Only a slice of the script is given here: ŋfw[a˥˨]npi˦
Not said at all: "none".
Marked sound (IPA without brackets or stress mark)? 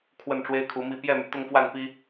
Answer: a˥˨